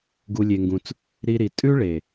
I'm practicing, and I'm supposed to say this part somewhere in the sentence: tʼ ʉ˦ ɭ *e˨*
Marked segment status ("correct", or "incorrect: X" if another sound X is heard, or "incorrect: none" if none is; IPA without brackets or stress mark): correct